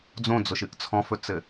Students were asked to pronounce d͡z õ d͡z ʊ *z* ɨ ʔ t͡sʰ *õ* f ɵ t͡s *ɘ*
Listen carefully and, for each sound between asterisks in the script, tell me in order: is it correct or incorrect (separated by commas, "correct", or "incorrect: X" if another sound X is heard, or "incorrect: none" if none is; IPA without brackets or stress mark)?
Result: incorrect: ʃ, incorrect: ɔ̃, correct